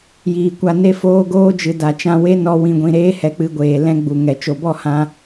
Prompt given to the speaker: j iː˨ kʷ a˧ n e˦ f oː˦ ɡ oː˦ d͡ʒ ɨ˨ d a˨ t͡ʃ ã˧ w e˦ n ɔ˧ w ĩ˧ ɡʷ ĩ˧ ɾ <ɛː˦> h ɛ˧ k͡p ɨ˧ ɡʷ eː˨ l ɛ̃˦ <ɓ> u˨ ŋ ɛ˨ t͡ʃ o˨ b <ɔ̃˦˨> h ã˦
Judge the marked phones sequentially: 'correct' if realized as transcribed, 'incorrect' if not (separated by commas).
incorrect, incorrect, incorrect